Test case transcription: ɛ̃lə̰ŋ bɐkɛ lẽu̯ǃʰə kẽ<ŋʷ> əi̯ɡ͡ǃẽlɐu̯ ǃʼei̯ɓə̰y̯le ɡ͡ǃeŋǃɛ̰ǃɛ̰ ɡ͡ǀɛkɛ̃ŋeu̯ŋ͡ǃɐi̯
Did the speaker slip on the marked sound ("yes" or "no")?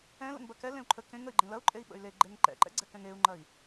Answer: yes